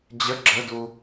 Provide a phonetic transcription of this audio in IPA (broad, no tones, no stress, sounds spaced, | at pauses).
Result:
d͡ʑ ə ɡ͡ǁ ə d u